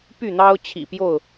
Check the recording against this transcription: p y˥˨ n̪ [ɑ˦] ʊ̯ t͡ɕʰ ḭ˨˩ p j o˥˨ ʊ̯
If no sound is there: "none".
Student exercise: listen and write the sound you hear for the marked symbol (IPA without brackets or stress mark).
ɑ˦